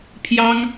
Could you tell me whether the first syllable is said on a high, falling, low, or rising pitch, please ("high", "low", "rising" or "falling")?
high